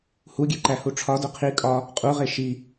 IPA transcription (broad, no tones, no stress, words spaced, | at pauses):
huɡʲeǃæhu ʈ͡ʂʰɒdo qʰi kʼɒ | qʼuʁe ʃi